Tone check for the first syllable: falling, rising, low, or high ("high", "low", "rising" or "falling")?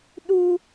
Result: high